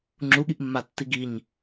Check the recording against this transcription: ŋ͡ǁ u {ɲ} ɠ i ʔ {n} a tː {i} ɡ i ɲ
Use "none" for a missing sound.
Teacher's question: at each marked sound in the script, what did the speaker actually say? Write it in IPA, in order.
none, mː, i

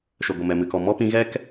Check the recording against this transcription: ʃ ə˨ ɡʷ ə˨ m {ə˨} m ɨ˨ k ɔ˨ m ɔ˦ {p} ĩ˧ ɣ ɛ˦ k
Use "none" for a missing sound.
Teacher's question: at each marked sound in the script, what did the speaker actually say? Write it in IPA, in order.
ɛ˨, p

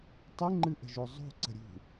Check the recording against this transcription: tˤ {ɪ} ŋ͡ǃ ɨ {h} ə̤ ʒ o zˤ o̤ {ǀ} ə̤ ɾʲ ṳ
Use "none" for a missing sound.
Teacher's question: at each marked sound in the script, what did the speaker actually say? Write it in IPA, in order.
ɨ, ʔ, ǀ

